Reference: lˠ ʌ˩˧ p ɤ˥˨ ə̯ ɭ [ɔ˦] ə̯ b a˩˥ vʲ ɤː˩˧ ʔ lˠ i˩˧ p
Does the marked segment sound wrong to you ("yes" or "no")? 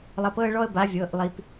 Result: no